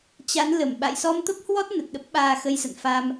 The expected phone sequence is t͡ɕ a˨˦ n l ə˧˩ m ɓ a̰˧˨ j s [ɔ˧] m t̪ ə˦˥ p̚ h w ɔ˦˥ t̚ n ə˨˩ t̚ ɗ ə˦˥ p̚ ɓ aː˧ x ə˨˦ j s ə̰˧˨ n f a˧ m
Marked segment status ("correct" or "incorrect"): correct